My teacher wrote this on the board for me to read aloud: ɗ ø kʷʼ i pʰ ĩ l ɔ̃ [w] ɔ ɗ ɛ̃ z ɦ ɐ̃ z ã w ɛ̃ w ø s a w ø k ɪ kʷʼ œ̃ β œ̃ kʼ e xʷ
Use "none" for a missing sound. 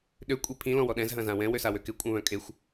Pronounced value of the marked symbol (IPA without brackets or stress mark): w